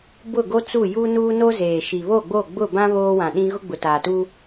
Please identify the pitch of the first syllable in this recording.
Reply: falling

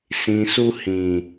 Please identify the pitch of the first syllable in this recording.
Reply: low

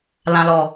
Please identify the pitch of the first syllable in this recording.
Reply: low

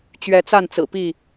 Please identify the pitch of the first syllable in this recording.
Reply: rising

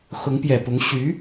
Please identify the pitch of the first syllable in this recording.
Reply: rising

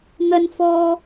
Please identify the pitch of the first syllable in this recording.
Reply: low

